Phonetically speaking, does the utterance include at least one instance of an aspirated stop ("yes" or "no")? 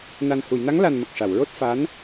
no